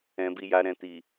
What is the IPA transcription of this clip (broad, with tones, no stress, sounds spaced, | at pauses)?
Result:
ɛ̃˨ b i˨ j a˨ ɾ ɛ̃˨ t i˨